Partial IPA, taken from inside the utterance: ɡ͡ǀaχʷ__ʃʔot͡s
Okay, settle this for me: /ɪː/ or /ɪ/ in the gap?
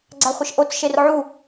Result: ɪ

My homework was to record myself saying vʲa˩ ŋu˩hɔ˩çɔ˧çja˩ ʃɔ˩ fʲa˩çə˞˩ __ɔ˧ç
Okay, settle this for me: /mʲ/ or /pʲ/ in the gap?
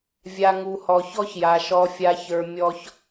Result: mʲ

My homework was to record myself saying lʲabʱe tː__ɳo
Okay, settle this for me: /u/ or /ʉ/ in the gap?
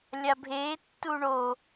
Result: u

